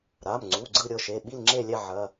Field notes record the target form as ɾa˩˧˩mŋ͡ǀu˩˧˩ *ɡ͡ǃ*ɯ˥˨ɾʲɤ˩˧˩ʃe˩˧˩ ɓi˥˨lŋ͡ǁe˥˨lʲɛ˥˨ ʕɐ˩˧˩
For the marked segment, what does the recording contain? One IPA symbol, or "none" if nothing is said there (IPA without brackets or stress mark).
ɡ͡ǀ